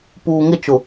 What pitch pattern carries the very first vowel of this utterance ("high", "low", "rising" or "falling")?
low